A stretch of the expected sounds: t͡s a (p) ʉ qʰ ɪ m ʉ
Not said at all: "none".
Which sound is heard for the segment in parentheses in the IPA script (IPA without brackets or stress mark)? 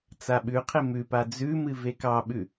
ɓ